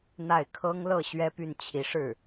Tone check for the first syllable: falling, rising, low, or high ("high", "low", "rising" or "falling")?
falling